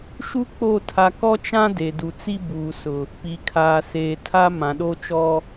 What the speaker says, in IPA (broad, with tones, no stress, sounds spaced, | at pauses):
ʃ u˦ k͡p o˦˨ tʰ a˦ k ɔ˦ t͡ʃ ã˦ d e˨ d u˨ t͡s i˦ b uː˨ s ʊ˨ | p iː˨ kʰ aː˨ s eː˨ tʰ a˦ m ã˨ ɗ o˦ t͡ʃ ɔ˦